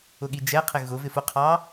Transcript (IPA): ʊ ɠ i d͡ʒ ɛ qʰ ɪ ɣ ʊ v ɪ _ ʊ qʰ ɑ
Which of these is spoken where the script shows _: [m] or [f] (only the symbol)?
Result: f